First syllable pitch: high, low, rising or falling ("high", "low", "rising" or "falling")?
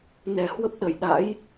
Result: low